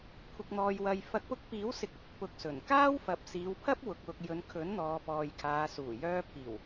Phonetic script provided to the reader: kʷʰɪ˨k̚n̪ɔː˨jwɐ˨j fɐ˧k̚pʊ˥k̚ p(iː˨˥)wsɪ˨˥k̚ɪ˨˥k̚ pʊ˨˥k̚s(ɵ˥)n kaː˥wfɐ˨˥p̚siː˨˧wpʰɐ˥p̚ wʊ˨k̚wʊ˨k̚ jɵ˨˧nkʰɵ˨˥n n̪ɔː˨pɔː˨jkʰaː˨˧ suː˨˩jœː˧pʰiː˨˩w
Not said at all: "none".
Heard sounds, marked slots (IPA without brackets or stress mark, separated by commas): iː˨˥, ɵ˨˩